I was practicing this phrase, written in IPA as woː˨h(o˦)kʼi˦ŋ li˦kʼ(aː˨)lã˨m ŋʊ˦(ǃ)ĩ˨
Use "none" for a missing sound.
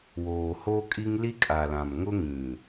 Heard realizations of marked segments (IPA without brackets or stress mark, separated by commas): o˦, a˨, ŋ